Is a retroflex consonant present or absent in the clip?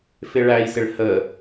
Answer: present